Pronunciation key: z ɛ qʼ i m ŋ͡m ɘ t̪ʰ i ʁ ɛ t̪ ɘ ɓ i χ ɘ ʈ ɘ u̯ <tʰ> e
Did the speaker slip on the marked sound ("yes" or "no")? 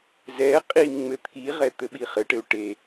yes